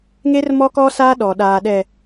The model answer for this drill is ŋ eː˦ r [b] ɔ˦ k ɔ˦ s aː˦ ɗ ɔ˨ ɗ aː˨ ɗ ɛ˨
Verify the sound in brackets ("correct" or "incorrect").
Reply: incorrect